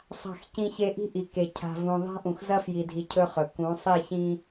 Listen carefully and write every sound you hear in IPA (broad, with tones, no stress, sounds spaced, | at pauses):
sˤ a̤˦˨ x c ĩ˦ ç e˦ ʔ i̤˦ ʔ i˨ k e˨ cʰ a̤˨ v ũ˨ ðˤ a̤˦ ʔ ũ˨ x z ɐ˦ f j i˨ dʱ i˨ cʰ ɵ˦ χ ɵ˨ k ũ˨˦ sˤ i˦˨ ç ĩ˦